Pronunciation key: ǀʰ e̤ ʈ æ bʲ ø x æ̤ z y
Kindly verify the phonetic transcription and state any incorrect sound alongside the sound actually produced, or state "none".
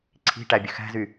e̤ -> i̤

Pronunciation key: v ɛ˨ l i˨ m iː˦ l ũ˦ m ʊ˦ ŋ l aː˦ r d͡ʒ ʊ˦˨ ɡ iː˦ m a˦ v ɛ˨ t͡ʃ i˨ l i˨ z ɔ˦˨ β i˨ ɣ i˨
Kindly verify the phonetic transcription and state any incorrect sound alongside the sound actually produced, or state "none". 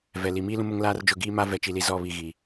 none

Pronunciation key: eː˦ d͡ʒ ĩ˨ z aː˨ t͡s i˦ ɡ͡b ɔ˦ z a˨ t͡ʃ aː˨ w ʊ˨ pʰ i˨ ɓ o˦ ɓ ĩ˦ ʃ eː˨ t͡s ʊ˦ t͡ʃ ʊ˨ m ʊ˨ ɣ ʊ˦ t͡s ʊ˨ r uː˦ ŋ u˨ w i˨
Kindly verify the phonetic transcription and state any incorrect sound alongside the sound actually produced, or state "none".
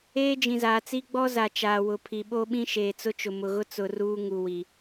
none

